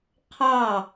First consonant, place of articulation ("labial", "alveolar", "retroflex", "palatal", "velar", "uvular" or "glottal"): uvular